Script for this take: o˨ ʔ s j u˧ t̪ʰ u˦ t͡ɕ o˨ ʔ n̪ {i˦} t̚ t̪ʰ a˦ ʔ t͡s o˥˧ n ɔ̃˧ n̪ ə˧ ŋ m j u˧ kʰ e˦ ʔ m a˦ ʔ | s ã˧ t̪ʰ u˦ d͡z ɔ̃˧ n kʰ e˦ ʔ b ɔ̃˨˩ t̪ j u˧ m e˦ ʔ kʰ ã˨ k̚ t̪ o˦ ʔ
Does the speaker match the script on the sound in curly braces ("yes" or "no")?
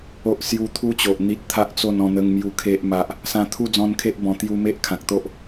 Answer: yes